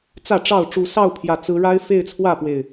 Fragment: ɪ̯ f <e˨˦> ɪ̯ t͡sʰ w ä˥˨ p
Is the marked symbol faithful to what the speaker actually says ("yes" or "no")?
no